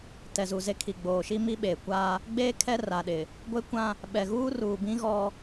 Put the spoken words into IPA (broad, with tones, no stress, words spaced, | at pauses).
tɛ˨zu˨ze˦kʰi˨ ɡ͡boː˨ʃi˦ mi˦ɓeː˨kʷaː˦ | ɡ͡beː˦ kʰɛ˦ra˨ɗɪ˨ | ɡʷe˦kʷã˦ | ɓɛ˨ɣuː˦ruː˨bĩ˦ ɣɔ˦